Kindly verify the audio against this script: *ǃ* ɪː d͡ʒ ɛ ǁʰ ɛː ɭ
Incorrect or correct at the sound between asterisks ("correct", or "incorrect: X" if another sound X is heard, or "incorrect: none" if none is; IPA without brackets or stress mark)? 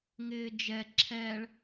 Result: incorrect: ŋ